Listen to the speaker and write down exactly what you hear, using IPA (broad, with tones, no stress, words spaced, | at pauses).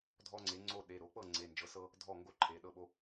dʱɔ˦ŋ͡ǀe˩˥ŋ͡ǀo˥˩ ɗe˩˧˩ ɾo˩˥k͡pɤ˥˩ ŋ͡ǀe˩˧˩nd͡ʒɤ˩˥sɤ˦ | dʱɔ˥˩ŋɡo˥˩ǃʰe˩˧˩ ɗɤ˥˩ɓo˦